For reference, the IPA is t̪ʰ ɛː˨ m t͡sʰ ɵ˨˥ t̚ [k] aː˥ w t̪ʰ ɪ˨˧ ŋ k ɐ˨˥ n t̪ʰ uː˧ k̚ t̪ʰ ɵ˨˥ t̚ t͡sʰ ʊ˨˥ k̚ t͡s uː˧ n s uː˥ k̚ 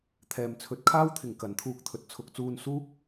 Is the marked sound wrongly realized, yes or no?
yes